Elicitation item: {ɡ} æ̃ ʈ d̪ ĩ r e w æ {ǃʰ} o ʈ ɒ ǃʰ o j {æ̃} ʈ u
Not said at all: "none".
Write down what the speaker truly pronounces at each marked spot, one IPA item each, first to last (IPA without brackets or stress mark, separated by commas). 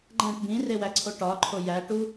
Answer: ɡ͡ǃ, ǀʰ, æ